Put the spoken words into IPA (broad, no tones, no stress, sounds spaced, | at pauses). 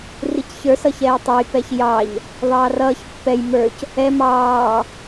r i c ç ə˞ s ʌ ç ɛː tˤ ʌ j p ɛ ç j ɑ ʎ | ðˤ ɑː r ʌː ç pː ɛ j m ə˞ c | ɛ m ɑː